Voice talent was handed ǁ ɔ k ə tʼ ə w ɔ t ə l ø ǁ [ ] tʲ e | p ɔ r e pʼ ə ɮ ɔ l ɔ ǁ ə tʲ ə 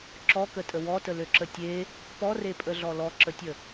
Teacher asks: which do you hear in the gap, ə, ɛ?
ə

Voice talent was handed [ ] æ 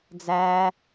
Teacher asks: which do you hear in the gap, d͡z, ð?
d͡z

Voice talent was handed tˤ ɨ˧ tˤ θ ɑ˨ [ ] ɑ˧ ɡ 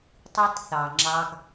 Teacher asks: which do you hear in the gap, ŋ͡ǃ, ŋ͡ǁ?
ŋ͡ǁ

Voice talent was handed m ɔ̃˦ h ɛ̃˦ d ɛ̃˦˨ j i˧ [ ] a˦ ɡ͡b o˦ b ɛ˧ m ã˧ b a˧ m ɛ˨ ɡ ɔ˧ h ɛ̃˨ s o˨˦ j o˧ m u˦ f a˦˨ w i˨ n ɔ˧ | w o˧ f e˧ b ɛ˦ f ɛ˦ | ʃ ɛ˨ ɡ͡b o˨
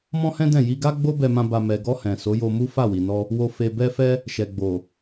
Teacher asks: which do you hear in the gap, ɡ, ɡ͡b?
ɡ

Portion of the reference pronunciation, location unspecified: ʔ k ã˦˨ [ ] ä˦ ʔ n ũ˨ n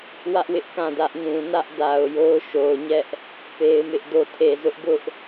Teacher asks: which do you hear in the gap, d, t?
d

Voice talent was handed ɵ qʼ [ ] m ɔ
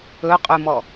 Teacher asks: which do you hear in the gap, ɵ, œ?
ɵ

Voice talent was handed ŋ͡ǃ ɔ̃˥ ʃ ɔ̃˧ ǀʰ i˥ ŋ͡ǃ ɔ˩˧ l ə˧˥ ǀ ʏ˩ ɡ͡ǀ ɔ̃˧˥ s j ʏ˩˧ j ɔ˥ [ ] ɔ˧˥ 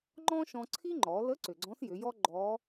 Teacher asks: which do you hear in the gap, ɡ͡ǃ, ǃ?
ɡ͡ǃ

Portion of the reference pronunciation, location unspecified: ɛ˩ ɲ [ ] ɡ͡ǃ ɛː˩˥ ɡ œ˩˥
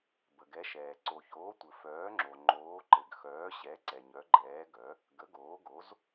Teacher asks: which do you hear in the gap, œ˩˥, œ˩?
œ˩˥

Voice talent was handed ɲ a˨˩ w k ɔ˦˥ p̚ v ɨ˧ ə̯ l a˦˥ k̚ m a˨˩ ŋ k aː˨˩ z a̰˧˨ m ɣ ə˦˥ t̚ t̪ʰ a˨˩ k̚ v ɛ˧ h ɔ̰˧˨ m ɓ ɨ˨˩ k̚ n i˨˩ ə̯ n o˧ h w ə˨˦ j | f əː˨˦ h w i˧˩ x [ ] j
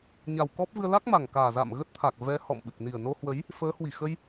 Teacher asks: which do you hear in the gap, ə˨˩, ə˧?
ə˧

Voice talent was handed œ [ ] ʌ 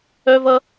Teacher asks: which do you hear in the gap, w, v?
v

